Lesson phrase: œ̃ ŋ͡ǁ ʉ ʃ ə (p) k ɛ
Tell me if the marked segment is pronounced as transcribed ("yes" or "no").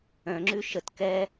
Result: no